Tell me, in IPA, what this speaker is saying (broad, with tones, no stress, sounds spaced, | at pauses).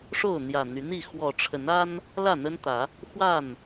ʂ o˥˨ ʊ̯ n̪ j ä˨˩ n̪ y˨˦ n̪ i˥˨ x w ɔ˨˩ ʈ͡ʂʰ ə˨˦ n a˦ n | l ä˥˨ n̪ ə˦ n t̪ ä˨˦ | x w a˥˨ n